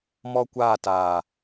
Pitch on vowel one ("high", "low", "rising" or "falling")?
high